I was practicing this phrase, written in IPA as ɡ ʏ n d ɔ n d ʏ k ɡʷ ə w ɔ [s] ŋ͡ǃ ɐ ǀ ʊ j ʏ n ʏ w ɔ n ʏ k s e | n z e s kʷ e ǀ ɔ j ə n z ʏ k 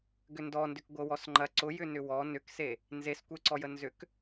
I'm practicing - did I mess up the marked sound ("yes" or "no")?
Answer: no